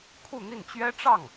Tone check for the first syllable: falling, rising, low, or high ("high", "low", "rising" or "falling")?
falling